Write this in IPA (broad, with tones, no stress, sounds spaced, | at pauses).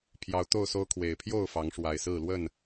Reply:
pʰ j ɑ˨˦ ʊ̯ t̪ o˥˨ ʊ̯ s o˦ ʊ̯ kʰ w e˨˩ ɪ̯ pʰ j o˥˨ ʊ̯ f ɑ˨˦ ŋ ʂ w a˨˩ ɪ̯ s ɹ̩˥˨ l w ə˥˨ n